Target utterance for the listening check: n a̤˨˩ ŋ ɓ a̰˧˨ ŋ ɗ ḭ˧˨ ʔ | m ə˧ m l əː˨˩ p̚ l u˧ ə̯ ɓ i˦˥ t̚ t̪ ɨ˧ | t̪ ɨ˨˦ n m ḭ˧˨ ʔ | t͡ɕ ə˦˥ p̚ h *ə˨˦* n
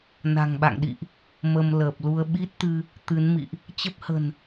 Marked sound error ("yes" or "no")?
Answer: yes